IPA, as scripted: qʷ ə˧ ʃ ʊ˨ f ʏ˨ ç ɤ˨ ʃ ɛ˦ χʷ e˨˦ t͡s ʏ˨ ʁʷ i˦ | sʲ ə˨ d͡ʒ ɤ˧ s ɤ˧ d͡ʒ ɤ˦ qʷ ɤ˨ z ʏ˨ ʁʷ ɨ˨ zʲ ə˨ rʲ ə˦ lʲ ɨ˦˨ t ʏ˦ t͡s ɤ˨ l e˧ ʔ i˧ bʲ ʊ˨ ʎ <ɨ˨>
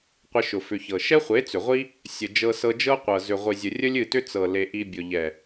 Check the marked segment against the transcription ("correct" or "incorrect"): incorrect